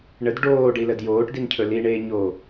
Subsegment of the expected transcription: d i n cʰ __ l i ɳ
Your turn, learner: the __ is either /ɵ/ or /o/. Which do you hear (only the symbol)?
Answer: ɵ